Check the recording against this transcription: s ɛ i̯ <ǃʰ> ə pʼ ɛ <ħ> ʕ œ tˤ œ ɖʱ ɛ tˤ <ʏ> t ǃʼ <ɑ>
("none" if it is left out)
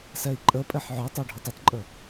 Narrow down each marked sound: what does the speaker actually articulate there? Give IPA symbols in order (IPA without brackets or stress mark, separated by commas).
ǃʼ, ħ, ʏ, ə